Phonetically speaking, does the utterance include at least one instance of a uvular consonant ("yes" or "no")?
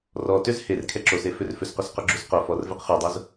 yes